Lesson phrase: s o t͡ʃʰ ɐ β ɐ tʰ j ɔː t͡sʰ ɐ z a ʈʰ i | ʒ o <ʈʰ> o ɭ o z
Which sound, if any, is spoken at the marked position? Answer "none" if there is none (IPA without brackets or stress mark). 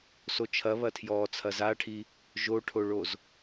ʈʰ